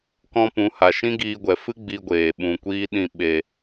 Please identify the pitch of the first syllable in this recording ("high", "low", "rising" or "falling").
high